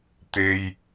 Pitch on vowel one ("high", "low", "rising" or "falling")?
high